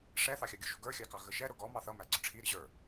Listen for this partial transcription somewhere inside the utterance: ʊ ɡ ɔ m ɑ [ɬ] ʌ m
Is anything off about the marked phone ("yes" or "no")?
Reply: yes